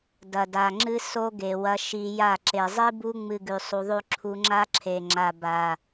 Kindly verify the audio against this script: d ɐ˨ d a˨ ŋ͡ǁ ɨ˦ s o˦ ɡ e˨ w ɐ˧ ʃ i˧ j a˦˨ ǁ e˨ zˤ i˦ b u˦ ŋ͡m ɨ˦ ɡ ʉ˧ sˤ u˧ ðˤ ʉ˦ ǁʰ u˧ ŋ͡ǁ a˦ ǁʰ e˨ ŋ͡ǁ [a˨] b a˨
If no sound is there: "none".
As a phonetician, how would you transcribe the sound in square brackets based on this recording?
a˨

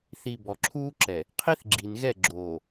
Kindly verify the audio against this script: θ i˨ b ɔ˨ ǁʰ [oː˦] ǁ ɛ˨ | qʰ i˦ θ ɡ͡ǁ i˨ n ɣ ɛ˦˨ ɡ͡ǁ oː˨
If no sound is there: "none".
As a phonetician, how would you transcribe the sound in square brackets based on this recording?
uː˦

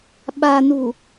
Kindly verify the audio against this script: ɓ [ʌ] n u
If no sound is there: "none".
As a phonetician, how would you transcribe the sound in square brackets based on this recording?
a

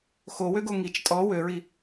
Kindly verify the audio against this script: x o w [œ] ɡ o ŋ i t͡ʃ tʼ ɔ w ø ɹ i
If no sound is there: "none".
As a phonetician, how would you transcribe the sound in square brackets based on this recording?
ø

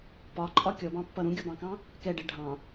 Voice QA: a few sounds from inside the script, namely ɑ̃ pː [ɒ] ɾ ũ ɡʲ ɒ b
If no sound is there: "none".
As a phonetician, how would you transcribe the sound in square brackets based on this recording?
ʌ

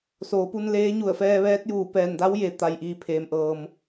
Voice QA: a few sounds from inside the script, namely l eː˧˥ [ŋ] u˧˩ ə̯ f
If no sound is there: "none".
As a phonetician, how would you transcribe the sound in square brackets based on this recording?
ɲ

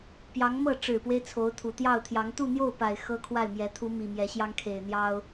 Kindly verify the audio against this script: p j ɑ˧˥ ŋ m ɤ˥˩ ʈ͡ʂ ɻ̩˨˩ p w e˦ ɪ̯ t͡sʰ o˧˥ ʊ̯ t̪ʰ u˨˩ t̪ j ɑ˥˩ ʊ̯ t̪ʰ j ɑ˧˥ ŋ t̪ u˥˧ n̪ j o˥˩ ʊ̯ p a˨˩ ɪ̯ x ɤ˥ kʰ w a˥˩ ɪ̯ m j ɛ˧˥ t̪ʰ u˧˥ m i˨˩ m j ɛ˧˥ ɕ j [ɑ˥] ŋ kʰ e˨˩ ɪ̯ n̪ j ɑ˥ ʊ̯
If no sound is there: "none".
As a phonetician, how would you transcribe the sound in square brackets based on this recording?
ɑ˥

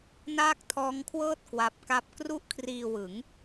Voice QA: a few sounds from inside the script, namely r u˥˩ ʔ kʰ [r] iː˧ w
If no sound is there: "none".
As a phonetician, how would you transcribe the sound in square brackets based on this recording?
r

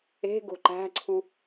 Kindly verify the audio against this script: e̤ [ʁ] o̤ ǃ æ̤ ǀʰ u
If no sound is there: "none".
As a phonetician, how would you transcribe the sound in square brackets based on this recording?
ɡ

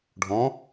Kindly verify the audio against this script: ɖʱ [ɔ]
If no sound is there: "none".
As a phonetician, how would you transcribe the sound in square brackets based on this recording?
ɔ̃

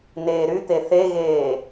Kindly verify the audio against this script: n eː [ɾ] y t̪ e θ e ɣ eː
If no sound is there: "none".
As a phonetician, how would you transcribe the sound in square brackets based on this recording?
ɾ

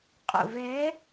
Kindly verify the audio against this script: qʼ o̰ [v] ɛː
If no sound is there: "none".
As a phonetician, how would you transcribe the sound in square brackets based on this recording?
v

